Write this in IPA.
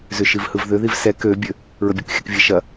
z ʏ ʃ i v h ɯ v ð ʏ ð i v s ɛ k ø bʲ ø | ɹ ə bʲ ɯ k xʲ ə k vʲ ɛ ʃ ɐ

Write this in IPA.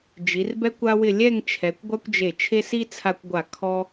d͡ʒ i˩˧ r b ɛ˥ kʷ a˥ w ɪ˥˧ lʲ ɛ˥˧ ŋ t͡ʃʰ ɛ˩˧ kʷ ɡʷ a˥ kʷ d͡ʒ e˧˩ t͡ʃʰ e˥ s i˥ t͡sʰ a˧ kʷ ɡʷ a˧˩ kʰ ɔ˥

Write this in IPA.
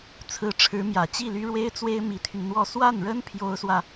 t͡sʰ ɹ̩˧˥ ʈ͡ʂʰ ɻ̩˧˥ m j ä˨˩ t͡ɕ i˥˩ l y˥ ɻ w e˥ ɪ̯ t͡s w e˥ ɪ̯ m i˧˥ t̪ʰ y˧ n n̪ w ɔ˥˧ s w a˥˩ n ɻ ə˥ n pʰ j o˥ ʊ̯ s w ä˨

